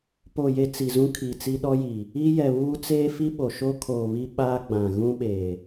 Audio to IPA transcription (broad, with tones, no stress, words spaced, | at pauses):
po˨je˨ t͡si˨zũ˦ kʰiː˨t͡si˦ɗɔ˦ji˨ | i˦jɛ˨βuː˦ t͡seː˦fi˦ɓo˨ʃoː˦ kʰoː˨βi˦ ɓaː˦ɡ͡bã˨ ɣũ˦ɓeː˨